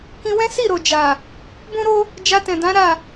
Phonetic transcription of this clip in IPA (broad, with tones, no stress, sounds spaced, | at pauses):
k ĩ˧ w ɛ̃˦ s i˦˨ ɾ o˨ d͡ʒ a˨ | b ũ˦ ɾ o˦ | d͡ʒ a˧ t ɛ̃˨ d ã˨˦ ɾ a˦˨